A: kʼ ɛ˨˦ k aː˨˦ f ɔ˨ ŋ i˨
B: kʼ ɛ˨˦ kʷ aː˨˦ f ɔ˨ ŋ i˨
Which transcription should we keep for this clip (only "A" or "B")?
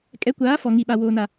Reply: B